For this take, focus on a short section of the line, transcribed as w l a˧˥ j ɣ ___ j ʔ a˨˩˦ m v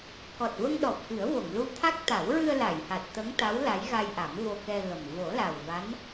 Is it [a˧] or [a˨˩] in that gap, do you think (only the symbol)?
a˧